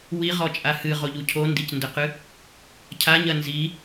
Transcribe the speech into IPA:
wiʁɔt͡ʃʼa hɨʁoʎu cʰondicndɘqɨ | cʰaɲɐ nzi

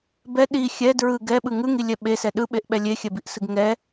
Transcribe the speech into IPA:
bɛ ɗi xʲɛ dɹɯ ɡɛɓɯ ŋɯŋilʲɛ ɓesɛ ɗɯɓeʔɓɛ lʲexʲɛbiʔsɯɡ ŋɛ

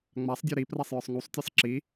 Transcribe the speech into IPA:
ŋ͡masˤdʲə˞ ɾiprasˤjə˞sˤ ŋusˤtʲɜsˤ ǁi

